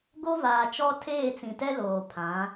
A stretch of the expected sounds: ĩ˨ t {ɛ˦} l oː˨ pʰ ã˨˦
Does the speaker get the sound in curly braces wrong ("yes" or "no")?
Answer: no